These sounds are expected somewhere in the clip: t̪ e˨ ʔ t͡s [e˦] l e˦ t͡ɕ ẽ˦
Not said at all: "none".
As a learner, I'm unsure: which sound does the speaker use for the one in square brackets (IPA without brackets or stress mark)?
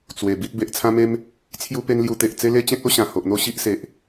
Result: e˦